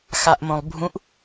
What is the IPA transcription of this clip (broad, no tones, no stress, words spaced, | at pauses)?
xaʔmõlˠbʱũʔ